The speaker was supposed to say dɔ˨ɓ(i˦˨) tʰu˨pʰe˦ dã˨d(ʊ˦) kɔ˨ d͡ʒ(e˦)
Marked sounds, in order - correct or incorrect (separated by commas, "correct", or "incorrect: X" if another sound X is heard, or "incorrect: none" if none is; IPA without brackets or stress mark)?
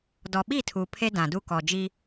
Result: correct, incorrect: u˦, incorrect: i˦